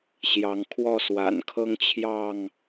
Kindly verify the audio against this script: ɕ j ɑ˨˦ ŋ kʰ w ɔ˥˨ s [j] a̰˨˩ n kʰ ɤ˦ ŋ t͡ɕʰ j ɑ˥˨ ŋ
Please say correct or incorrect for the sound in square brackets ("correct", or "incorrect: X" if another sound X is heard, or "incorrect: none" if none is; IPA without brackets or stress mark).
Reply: incorrect: w